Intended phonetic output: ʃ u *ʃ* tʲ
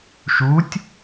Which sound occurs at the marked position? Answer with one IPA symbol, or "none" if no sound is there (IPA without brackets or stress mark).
none